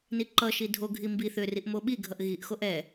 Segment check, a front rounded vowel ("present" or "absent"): present